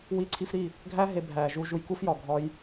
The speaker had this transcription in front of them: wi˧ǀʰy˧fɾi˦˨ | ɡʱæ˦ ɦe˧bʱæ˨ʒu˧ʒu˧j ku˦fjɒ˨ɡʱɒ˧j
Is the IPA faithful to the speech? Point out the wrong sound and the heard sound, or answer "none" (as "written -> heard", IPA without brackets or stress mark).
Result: y˧ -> i˧